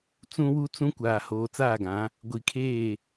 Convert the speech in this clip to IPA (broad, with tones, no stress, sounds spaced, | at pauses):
t͡s ũ˦ w u˦ t͡s ũ˦ kʷ aː˨ h oː˨ t͡s aː˦˨ ɡ ã˨˦ | ɡʷ i˨ kʰ eː˦˨